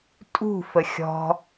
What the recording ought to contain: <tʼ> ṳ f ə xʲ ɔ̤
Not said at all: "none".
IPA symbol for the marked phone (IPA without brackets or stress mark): tʼ